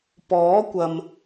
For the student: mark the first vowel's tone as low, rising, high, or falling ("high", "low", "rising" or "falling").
rising